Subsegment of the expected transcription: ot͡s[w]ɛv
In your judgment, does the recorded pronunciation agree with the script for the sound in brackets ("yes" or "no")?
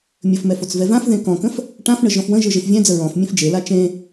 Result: no